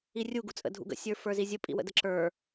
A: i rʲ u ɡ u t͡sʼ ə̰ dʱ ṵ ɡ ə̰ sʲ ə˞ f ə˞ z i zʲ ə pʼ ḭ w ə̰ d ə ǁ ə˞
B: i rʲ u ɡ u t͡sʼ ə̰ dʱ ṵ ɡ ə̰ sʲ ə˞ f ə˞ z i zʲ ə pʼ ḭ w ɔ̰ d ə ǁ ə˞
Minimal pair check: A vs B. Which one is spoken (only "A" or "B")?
A